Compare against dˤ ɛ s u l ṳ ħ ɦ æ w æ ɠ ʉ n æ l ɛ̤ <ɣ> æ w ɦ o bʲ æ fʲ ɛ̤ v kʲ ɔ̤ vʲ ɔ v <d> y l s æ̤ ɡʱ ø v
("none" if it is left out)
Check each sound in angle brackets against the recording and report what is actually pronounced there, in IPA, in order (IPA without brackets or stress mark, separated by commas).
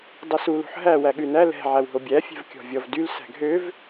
ʕ, d